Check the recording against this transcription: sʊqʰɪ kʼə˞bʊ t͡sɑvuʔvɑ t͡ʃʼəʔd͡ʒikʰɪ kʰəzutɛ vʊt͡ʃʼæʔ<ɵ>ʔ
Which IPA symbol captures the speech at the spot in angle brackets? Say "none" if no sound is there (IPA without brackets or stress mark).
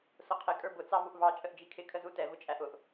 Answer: ʊ